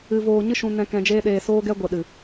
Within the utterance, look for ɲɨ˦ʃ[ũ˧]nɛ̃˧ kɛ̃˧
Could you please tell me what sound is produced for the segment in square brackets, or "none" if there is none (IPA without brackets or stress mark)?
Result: ũ˧